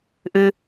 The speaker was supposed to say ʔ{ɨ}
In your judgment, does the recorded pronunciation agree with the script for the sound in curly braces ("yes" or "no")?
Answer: yes